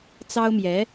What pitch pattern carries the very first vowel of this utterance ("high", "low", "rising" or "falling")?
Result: high